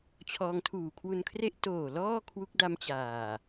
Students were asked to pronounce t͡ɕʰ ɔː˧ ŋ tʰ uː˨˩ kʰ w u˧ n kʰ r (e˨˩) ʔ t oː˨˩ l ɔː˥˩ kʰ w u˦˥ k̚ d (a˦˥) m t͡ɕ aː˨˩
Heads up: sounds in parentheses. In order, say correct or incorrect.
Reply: incorrect: e˥˩, correct

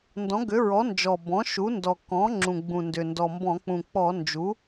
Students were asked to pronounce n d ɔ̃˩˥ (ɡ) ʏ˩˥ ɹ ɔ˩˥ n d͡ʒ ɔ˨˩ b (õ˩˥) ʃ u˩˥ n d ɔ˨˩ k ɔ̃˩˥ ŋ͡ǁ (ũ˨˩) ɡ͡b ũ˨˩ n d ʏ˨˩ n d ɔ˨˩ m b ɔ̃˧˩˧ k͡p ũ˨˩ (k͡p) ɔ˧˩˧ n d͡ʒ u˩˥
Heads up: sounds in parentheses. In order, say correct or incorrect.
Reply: correct, incorrect: ɔ̃˩˥, correct, correct

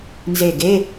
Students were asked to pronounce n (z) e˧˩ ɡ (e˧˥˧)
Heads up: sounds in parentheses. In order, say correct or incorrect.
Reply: correct, correct

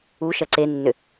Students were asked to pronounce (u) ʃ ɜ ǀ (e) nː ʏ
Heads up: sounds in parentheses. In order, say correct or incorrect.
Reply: correct, correct

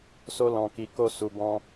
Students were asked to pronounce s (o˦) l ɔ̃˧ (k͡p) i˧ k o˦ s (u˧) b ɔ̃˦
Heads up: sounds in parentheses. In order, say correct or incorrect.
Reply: correct, incorrect: k, correct

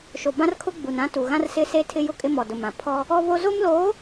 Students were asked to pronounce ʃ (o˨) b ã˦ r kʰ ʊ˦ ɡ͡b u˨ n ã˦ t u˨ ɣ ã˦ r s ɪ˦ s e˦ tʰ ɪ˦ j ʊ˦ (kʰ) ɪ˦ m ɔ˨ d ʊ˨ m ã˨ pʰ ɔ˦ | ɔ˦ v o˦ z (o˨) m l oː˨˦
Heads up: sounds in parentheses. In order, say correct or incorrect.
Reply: correct, incorrect: kʼ, incorrect: o˦

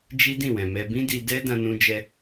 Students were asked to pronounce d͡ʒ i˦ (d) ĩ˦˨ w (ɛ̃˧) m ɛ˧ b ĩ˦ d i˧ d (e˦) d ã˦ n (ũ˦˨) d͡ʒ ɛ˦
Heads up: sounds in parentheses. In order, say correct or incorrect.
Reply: correct, incorrect: ɛ̃˨, incorrect: ɛ˦, incorrect: ũ˦

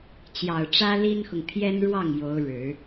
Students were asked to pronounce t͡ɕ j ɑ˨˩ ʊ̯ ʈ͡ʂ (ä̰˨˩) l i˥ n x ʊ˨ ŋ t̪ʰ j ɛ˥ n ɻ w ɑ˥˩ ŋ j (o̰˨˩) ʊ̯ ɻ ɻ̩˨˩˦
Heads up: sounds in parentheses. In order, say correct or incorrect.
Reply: incorrect: ä˥, incorrect: o˧˥

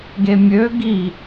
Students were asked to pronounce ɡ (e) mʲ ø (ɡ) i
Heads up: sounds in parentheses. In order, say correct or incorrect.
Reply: correct, correct

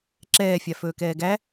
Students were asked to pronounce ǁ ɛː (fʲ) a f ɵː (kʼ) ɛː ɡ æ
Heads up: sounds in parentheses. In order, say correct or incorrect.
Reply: correct, incorrect: k

